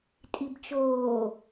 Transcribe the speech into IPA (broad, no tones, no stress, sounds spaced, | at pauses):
tʼ i b t͡ʃ oː